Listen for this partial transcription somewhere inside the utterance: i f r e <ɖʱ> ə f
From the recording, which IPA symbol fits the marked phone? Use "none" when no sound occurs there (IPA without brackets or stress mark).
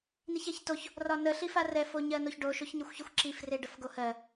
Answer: ɖ